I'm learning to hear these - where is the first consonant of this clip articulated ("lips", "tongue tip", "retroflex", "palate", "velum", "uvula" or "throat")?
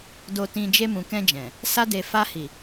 tongue tip